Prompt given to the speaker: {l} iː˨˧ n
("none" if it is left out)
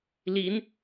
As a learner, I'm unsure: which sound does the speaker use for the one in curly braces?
l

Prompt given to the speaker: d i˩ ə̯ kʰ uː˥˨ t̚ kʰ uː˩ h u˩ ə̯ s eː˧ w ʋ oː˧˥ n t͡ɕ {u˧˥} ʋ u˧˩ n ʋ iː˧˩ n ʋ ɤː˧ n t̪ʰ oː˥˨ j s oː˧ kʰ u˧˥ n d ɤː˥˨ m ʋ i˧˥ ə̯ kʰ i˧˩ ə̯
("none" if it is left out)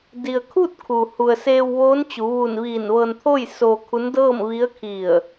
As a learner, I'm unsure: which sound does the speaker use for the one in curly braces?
u˩˧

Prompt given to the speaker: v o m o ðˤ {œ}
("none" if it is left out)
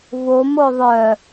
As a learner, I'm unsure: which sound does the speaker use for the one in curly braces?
œ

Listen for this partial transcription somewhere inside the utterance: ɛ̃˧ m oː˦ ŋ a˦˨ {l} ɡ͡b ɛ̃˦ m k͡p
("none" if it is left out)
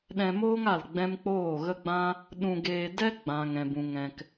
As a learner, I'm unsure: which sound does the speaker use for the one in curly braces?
l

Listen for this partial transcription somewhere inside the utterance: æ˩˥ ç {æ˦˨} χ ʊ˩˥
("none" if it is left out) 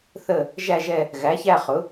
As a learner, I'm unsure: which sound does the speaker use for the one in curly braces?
æ˦˨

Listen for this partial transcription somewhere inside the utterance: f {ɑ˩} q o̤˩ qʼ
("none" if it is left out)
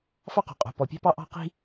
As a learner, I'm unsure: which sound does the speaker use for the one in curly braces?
ɑ˥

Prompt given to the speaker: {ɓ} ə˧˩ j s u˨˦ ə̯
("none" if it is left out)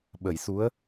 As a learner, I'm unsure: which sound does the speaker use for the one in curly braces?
ɓ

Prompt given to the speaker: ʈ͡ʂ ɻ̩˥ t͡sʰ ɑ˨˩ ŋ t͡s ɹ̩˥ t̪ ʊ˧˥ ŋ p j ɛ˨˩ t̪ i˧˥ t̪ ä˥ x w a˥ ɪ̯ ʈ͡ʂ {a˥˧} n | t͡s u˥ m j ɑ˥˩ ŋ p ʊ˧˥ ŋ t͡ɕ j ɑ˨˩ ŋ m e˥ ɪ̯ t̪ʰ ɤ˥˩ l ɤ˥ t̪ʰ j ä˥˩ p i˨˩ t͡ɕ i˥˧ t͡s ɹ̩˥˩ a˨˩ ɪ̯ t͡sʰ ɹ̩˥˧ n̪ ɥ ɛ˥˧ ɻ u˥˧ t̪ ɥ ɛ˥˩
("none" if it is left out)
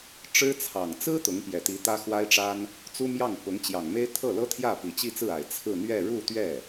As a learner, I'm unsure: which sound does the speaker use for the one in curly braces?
a˥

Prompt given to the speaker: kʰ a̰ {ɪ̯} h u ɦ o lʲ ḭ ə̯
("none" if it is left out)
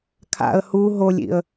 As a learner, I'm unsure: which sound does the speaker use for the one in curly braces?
ə̯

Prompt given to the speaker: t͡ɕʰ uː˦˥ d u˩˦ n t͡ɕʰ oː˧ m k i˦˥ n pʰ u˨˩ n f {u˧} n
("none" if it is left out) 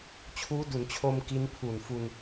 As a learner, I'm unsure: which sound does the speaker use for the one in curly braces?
u˧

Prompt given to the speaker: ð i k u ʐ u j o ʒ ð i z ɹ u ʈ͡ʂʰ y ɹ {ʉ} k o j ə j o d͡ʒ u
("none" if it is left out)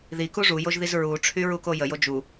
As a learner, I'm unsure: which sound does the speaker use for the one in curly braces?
u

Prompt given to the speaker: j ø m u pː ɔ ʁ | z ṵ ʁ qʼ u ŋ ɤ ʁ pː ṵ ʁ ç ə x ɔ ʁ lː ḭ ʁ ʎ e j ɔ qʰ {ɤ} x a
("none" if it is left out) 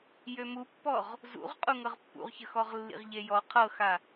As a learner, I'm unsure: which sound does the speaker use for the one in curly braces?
ɤ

